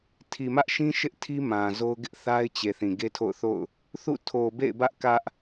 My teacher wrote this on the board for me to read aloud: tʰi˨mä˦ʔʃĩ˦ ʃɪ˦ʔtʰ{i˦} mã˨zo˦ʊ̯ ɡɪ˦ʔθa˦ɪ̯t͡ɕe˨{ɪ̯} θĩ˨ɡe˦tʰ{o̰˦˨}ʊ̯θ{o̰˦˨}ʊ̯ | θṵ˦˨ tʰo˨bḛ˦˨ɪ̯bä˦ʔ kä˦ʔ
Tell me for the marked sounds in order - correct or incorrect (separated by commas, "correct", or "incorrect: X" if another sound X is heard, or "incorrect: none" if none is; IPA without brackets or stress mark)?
correct, incorrect: none, correct, correct